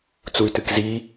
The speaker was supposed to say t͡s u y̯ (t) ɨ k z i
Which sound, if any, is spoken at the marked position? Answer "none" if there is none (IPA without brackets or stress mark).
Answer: t